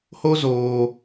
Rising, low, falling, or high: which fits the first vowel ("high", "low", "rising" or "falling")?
high